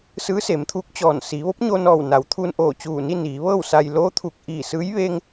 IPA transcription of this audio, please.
s ɯː˧˥ s e˩˧ m t̪ʰ uː˧˥ k̚ t͡ɕ ɔː˧˩ n s iː˩˧ ʋ o˧˥ p̚ ɲ o˧ n ɔː˧˩ w n a˩˧ w t̪ʰ uː˧ n ʔ oː˧˩ t͡ɕ uː˧˩ n i˥˨ n iː˩˧ ʋ ɤː˥˨ w s a˧ j l oː˧˥ t̪ʰ uː˧˩ k̚ ʔ iː˧˩ s ɯː˧˥ j ʋ e˧ ŋ

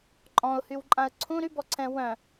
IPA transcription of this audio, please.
ǃʼ ɔ̃ ʊ̯ h y w ǃʼ ã ə̯ ǀʰ ũ ɾ y b ɔ ǀʰ ɛ̃ w œ̃

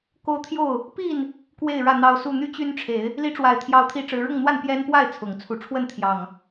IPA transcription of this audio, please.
k o˦ ʊ̯ t̪ʰ j o˥˨ ʊ̯ | p i˥˨ n | k w e˥˨ ɪ̯ ɻ ä˥˨ n̪ ɑ˦ ʊ̯ s u˥˨ n̪ y˦ t͡ɕ y˦ n ʈ͡ʂʰ e˨˦ ɪ̯ | l i˨˦ ʈ͡ʂ w a˨˩ ɪ̯ t̪ʰ j ɑ˨˦ ʊ̯ t̪ʰ i˨˦ ʈ͡ʂ ɻ̩˨˦ ɻ ʊ˥˨ ŋ n̪ w a˥˨ n p j ɛ˦ n p w a˥˨ ɪ̯ t͡sʰ ʊ˨˩ ŋ t͡sʰ u˨˦ ʈ͡ʂʰ w ə˥˨ n t̪ʰ j ɑ˨˩ ŋ

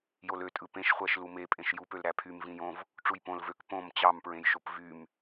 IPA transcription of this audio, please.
j o l ø tʼ ɯ p ẽ ʃ χʷ æ ʃ l u m e pʼ ẽ ʃ j u p ø l ɾ æ pʰ y m v ĩ j õ v | ʈ͡ʂ u j p õ l v ø k p õ m t͡ɕ ɑ m p ɹ ẽ j ʃ o p v y m

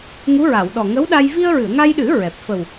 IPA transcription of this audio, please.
ŋ u˧˥ ɹ a˨˩˨ w ɗ ɔ˨˩ ŋ ə˧˥ w ɗ a˧ j v i˧ ə̯ ɹ ɨ˨˩˨ ə̯ ŋ a˧ j ɗ ɨ˨˩˦ ɹ ɛ˨˩ p̚ f ə˨˩ w

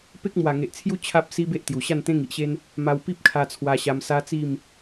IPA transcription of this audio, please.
p e˦ k̚ m w a˨˩ ŋ e˨ ʔ t͡sʰ j u˦ t͡ɕʰ a˦ p̚ s i˦ b e˦ ʔ t̪ j u˨˩ ɕ a˥˧ n t̪ ẽ˦ ŋ i˨ ʔ ɕ e˦ n | m a˧ w p i˦ p̚ kʰ a˧ t͡sʰ w a˧ ɕ a˧ m s a˦ t͡s i˥˧ m

